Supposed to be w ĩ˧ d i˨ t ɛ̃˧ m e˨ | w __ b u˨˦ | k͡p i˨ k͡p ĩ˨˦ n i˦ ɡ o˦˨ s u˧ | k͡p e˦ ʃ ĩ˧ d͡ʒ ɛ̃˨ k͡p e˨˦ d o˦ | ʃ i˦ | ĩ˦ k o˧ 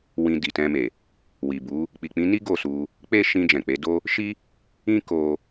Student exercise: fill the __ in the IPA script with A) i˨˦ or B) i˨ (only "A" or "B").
B